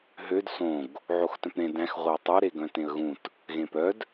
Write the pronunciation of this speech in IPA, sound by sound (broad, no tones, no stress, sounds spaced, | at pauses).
ɦ ø d s õ ɡ | ʕ o x t œ̃ p ɾ ẽ d æ̃ x ʁʷ œ ɪ̯ tˤ ɵ ɾ e ɡ œ̃ t ẽ ə̯ ɣ ũ t | ɣ ẽ p œ d